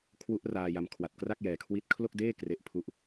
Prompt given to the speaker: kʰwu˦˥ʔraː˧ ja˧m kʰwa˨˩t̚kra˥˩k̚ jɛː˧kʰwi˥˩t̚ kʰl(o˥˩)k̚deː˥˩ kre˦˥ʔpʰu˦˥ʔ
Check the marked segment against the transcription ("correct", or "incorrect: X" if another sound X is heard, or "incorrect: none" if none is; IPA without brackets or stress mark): correct